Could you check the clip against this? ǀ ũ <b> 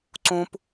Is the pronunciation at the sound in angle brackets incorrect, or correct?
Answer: incorrect